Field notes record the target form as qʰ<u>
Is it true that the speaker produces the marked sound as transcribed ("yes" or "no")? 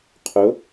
no